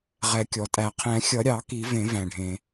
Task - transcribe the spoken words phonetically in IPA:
ʁ ɛ˨˩˦ kʲ ɔ˩ tʼ æ˨˩˦ qʰ ɛ̃˨˩˦ xʲ ʌ˨˩˦ ɾʲ ɑ˨˩˦ k i˨˩˦ v ẽ˨˩˦ v æ̃˩ ɖʱ ẽ˩

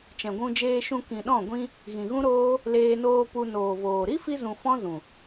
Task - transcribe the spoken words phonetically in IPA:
t͡ʃ ɛ̃˨ ɡʷ ũ˧ d͡ʒ eː˧ ʃ ũ˧ k ĩ˨ ɗ ɔ̃˦˨ ɡʷ ĩ˦ | ɣ ĩ˨ ɣ ũ˦ ɾ oː˦ | l eː˧ n oː˧ p u˧ n oː˨ v oː˨ ɾ i˦ f i˧ z ũ˨ f ɔ̃˦ z ũ˨

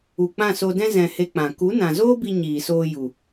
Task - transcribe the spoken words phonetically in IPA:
u˨ k͡p ã˦˨ s o˧ d ɛ̃˦ z ɛ̃˧ h e˧ k͡p ã˨ k u˨˦ n ã˨ z oː˦ b i˧ ɲ iː˨ s oː˧ j u˨

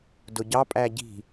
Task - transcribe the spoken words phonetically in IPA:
d ʊ ɟ ɑ pʼ æ ɟ i̤

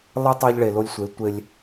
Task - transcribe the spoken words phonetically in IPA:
lˠ ɨ˦ tˤ o˦ ʎ ɭ e˨ l o˦ lʲ sʷ e˨˦ tʷ e˦ lʲ

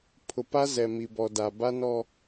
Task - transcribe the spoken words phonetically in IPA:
pʰ ʊ˨ p a˦ z ɛ˨ m i˨ b ɔ˨ d a˨ b a˦ n ɔ˦

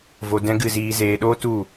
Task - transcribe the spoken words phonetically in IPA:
v o˧ d ɛ̃˦ ɡ ɨ˦˨ z iː˧ z eː˧ ɗ oː˦ t u˦˨

